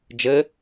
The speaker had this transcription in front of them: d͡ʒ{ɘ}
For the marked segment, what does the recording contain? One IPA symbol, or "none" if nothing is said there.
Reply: ɘ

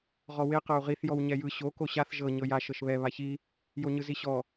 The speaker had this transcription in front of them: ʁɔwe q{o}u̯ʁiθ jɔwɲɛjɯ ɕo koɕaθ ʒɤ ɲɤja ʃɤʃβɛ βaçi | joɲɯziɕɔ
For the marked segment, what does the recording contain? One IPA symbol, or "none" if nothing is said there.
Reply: ɤ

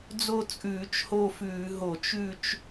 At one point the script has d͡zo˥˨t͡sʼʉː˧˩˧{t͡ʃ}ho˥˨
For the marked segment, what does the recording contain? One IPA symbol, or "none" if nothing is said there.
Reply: t͡ʃ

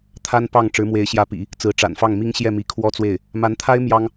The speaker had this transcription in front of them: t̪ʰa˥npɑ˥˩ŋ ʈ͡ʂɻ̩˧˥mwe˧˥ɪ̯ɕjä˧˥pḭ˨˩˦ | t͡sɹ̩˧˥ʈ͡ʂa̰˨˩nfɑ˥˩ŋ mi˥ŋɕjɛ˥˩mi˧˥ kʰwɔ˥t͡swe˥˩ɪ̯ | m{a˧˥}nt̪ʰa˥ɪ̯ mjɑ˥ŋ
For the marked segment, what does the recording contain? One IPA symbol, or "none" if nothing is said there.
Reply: a˧˥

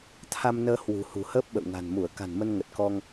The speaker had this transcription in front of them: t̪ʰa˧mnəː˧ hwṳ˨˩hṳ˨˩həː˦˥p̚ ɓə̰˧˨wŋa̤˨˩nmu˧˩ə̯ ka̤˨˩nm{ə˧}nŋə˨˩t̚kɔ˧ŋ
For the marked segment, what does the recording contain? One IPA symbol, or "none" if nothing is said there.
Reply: ə˧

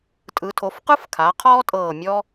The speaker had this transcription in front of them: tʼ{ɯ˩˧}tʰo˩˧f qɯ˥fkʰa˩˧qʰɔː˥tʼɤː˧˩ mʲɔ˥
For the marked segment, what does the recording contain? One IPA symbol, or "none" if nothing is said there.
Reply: ɯ˩˧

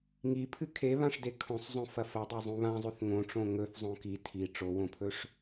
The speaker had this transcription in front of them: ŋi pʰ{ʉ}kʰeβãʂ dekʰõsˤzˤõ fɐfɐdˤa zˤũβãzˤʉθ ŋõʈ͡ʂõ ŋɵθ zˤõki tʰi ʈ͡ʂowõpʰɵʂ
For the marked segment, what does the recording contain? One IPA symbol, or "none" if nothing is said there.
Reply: ɨ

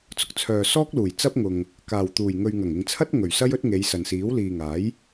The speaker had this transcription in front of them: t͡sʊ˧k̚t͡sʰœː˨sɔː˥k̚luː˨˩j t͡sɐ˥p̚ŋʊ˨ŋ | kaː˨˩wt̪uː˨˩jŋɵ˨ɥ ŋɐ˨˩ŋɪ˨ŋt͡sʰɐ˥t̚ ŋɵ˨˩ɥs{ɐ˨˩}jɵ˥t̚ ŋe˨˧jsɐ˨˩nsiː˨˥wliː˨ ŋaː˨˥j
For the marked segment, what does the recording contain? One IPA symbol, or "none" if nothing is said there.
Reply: ɐ˥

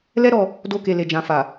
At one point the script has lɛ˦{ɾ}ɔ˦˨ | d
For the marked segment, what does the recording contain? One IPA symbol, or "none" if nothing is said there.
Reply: ɾ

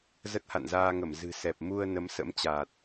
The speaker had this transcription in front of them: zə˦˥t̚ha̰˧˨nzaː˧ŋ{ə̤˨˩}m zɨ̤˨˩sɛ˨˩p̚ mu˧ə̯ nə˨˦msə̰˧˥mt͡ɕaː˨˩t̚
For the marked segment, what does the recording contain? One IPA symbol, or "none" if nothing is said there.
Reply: ə˧˩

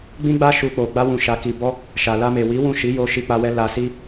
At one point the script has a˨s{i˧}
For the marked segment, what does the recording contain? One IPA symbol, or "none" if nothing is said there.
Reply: i˧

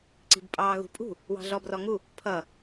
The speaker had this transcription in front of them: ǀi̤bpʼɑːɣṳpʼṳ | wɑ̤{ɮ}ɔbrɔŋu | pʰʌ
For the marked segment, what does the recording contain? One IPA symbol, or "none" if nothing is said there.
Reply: ɮ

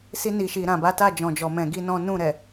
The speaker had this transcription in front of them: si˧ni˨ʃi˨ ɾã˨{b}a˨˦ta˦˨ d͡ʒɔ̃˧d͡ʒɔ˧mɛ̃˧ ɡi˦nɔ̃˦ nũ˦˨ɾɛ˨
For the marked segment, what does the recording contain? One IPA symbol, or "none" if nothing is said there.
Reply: b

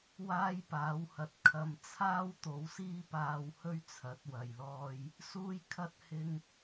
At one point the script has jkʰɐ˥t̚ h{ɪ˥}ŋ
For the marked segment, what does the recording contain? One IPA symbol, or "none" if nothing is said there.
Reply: ɪ˥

